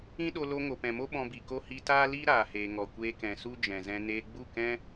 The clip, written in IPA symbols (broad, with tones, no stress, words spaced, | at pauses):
ĩ˦ɗo˧lo˧ ŋo˨pɛ̃˨mo˦ ɓɔ̃˧bi˨ko˦ hi˧taː˦ liː˦ ɾaː˨heː˨ ŋɔ˨kʷeː˧kɛ̃˨ su˦d͡ʒɛ̃˨zɛ̃˧ neː˧ɡ͡bu˦˨kɛ̃˦